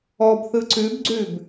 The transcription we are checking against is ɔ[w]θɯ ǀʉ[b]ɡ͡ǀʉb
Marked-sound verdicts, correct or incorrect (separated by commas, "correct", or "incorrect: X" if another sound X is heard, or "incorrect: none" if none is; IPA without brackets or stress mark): incorrect: b, correct